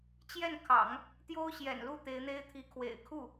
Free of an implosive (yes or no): yes